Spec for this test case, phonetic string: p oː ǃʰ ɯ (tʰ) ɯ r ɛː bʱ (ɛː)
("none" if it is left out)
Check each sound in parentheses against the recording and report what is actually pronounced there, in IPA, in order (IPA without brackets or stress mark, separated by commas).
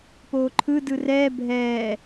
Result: d, ɛː